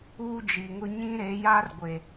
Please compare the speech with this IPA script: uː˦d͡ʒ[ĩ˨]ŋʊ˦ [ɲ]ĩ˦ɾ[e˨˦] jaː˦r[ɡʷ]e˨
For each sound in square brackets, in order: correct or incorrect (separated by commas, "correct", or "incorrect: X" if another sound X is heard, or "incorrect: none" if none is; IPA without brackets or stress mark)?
incorrect: i˨, correct, correct, correct